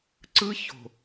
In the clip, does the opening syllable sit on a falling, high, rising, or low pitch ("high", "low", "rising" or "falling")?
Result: high